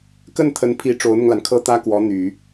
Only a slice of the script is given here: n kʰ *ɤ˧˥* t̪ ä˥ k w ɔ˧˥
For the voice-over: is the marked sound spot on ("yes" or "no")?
no